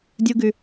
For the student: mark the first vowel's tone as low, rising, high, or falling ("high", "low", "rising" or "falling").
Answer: high